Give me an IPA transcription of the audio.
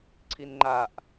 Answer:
ǀʰ i n ŋ͡ǃ a ʔ

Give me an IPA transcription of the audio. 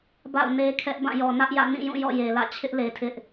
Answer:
b a̰˦˨ ʊ̯ n e˦ kʰ ɛ˦ ʔ b ã˦˨ j ɔ˨ n ä˦ ʔ j ä̰˦˨ n ĩ˦˨ j ũ˦˨ j ɔ̰˦˨ j e˨ l ä̰˦˨ t͡ɕʰ ɪ˦ ʔ l e˨ tʰ ɪ˦ ʔ

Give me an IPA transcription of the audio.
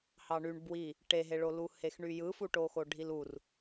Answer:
h ɑ ɳ y ɳ b w i | ʈ e ɦ e ɭ o l u h e x ɳ y j ɯ f u ʈ o x o ɖʱ i l u r

